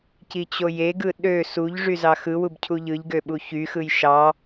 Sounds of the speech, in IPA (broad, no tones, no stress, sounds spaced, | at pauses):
c i t͡ɕ o j e ɡ ɯ ɗ ø s u ʎ ʐ y z ɑ x ɯ w u b cʰ u ʎ ɯ ʎ ɡ ø ɓ u ç y x ɯ j ʃ ɑ